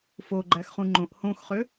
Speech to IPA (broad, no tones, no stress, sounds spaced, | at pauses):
f o ɡ͡ǃ æ x χ ũ ŋ͡ǃ õ ʔ h õ x χ ø